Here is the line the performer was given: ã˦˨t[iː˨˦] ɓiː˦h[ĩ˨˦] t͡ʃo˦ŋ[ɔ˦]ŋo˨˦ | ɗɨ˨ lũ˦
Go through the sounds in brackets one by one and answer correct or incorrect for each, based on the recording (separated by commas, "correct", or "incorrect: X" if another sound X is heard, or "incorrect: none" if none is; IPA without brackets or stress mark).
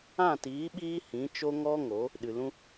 correct, correct, correct